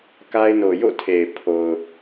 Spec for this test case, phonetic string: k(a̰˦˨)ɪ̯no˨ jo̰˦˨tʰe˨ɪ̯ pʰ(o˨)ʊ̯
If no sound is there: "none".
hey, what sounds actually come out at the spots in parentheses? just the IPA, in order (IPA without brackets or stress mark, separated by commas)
a˦, o˨